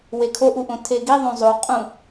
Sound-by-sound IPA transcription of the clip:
wekʰoʔuʔõ tʰeɡiðˤõ zˤoqʼũ

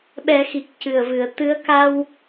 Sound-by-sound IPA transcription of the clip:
ɓɛ˨˩˦ xi˨˩k̚ cɨ˨˩ə̯vɨ˨˩˨ə̯ t̪ɨ˧˥ə̯ ka˧w

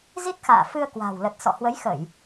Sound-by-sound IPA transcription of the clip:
zi˦˥t̚xa̰ː˧˨ fɨ˧ə̯ kwa̤ː˨˩wlə˨˩t̚sɔ̰˧˨ hwə˨˦jxə˧˩˨j

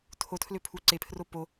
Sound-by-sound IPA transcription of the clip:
tʰotʰløpʰu ǀepʰro po

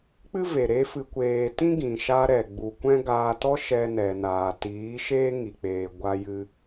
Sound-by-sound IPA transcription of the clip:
k͡pɨ˦ve˨ ɾe˦fɨ˧kʷeː˧ tĩ˦ɡĩ˨ʃa˧ ɾɛ˨ɡ͡bu˨kʷɛ̃˦ ɡaː˧tɔ˦ʃɛ˧ nɛ˨naː˨ tiː˨˦ʃeː˦ŋi˨k͡peː˨ ɡʷa˧jɨ˧

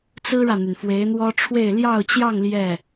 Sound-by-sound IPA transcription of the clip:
t͡sɹ̩˥ɻä˨n̪y˩n fwe˧˥ɪ̯n̪wɔ˥ ʈ͡ʂʰwe˥˧ɪ̯ ljɑ˥˧ʊ̯t͡ɕjɑ˥˧ŋ ljɛ˥˩

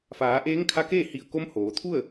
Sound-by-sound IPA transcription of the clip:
faː˩˧ʔeː˧˥ŋkʰa˧˥keː˥˨ hi˧˩ə̯ko˧˥mhoː˩˧t̪ʰu˥˨ə̯

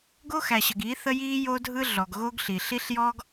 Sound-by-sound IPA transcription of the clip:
ɡo˦xæ˨ɕə˨ɡiː˨˦ θə˦jiː˦jo˦dʱɯ˦ ɮɔ˨ɡɣo˦ɡɬi˨ ɬi˦ɬjɔː˦ɡ

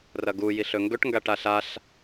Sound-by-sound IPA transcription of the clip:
rɐɡu jiɬɵŋɡɵʈ ŋɡaʈaɬaɬ

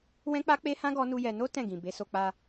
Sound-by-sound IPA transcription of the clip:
wɛ̃˦k͡pa˦k͡pe˦hã˦ ɡɔ˦nu˦jɛ˧ no˦ tɛ̃˦˨ɡĩ˨ be˨˦so˧k͡pa˧

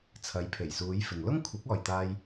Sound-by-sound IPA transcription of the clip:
t͡sʰɐ˨˧jpʰe˨˩jsuː˨˧jfɪ˨ŋ lʊ˥ŋkʷʰɪ˨˥k̚ ɔː˨jt̪aː˧j

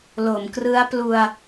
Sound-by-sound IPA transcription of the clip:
lo˩˦mkrɯ˦˥a̯plu˧a̯

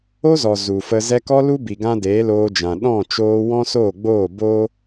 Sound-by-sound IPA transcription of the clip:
o˦zɔ˨ zu˨fə˧ zɛ˧kɔ˦lu˦bi˨ ɡã˦deː˨˦loː˧d͡ʒã˨ ɗɔ̃˦˨ t͡ʃoː˧wɔ̃˦ soː˦˨ɡ͡boː˦˨ bo˦

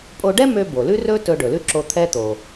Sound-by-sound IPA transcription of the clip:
pʼo˧ɖɛ˥mø˧ bo˩lʉ˥rɵ˥tɵ˧ ɖɵ˩lʉ˥ǁo˧ t̪ʰɛ˧t̪o˩

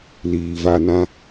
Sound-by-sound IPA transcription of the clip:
liː˨va˧nã˦

